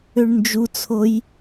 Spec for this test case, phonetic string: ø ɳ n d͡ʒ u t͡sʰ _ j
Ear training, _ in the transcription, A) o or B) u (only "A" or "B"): A